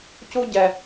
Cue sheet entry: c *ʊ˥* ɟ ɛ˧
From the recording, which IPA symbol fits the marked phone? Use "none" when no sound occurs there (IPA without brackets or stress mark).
u˥